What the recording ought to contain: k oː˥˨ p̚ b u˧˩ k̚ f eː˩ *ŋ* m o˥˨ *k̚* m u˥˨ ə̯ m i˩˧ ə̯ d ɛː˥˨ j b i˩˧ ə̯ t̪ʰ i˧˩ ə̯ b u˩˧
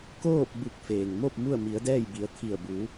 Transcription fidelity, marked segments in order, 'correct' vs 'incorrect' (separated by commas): correct, incorrect